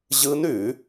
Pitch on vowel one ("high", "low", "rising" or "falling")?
rising